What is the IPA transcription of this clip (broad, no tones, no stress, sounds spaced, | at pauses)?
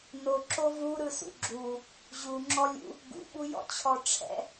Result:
n o ǁ o v u ɾ ɯ s ṵ ɡ͡ǁ u | ʑ u ŋ͡ǁ ɔ lʲ ṵ | ɡ ṵ ɓ u j ɔ̰ t͡ɕʰ ɔ ʈ͡ʂʰ ɛ̰